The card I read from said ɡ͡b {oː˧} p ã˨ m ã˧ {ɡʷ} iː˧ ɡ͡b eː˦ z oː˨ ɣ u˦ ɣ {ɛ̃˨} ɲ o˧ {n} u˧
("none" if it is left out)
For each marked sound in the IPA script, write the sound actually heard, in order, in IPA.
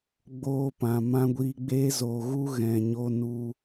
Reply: oː˧, ɡʷ, ɛ̃˨, n

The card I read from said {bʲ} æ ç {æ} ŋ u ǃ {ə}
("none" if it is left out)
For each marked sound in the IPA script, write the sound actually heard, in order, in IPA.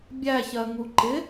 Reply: bʲ, ɜ, ɪ

